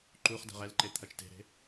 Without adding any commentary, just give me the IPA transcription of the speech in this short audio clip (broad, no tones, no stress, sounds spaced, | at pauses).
ǃ u χ d ɛ̤ ʁ ɛ l ǃ e t̪ʰ ɐ t͡ʃ t e̤ ɾ e̤